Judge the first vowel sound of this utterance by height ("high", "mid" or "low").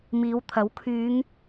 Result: high